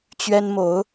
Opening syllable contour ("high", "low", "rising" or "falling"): high